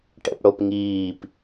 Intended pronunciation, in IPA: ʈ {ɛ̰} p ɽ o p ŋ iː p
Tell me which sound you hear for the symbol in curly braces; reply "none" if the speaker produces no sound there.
ɛ̰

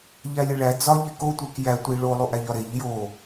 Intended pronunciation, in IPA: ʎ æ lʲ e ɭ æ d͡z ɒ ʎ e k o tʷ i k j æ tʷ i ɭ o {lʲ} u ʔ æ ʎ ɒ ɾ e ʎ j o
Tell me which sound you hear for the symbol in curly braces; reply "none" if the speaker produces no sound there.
lˠ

